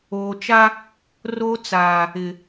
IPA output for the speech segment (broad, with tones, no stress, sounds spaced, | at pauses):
oː˨ t͡ʃ a˦ | r o˦ t͡s aː˨ | ɪ˨